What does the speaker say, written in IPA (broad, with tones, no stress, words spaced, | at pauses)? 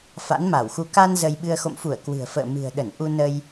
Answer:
fa̰˧˥nma˧˩wxu˧ ka˧n zə˧jɓɨ˧ə̯ xo̰˧˨mfu˧˩ə̯ kwɨ̤˨˩ə̯fə̰ː˧˨ mɨ̤˨˩ə̯ɗə˧˩n ʔu˧nə˧j